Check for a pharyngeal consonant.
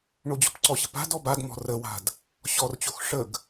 absent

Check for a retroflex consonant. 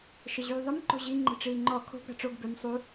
present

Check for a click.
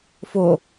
absent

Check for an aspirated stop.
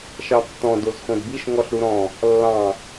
absent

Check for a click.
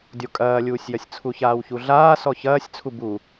absent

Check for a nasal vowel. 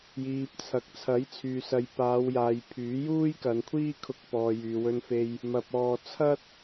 absent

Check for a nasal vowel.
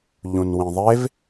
present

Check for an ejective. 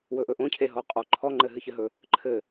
present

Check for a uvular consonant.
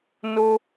absent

